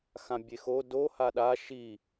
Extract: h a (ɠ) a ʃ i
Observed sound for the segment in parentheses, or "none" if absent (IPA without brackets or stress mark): ɗ